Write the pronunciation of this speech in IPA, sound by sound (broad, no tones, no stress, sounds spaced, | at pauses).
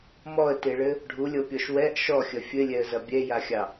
m ɔ ə̯ t e ɭ ɘ | ɖʱ u lʲ ɤ pʲ ɔ ʃ w ɛ ʔ ʃ ɔ xʲ ɐ fʲ ɘ lʲ ɛ ə̯ z ɐ bʲ ɛ j a xʲ ɑ